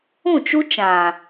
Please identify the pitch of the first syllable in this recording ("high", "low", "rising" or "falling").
falling